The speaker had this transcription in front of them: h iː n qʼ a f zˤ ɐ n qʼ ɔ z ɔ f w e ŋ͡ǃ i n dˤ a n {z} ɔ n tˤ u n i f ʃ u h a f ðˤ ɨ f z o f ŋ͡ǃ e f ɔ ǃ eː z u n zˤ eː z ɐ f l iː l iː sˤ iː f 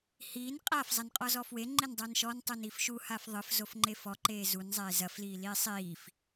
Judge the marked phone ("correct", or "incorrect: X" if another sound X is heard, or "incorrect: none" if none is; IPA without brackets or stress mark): incorrect: ʃ